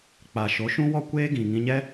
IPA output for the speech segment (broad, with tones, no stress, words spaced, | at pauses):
k͡pa˨ʃo˨˦ ʃũ˦wɔ˦kʷeː˦ ɡĩ˨ ŋĩ˧ɲɛ˦